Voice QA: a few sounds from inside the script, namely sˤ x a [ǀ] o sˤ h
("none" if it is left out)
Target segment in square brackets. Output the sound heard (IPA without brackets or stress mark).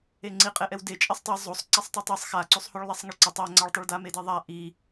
ǀ